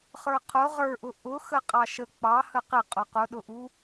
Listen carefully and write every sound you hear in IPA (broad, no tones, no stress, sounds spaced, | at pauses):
χ ə˞ qʰ ʊ ʁ ə˞ ʔ ʊ ʔ ʊ x ə qʼ ɑ ʃ ə k͡p ɑ h ə q ɪ qʼ ʊ q ʊ ɗ ʊ ʔ u